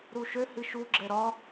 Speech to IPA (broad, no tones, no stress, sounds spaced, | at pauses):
ɾ u ʃ ø h ɨ ʃ u ɡ͡ǁ ɛ ɾ ɒ